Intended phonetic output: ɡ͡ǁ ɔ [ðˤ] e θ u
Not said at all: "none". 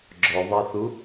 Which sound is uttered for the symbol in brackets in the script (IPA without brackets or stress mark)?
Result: ðˤ